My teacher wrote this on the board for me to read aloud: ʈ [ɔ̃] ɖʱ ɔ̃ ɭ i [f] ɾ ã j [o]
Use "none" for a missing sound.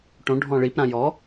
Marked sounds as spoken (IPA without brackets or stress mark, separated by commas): õ, p, ɔ